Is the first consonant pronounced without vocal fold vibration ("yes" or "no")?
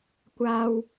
yes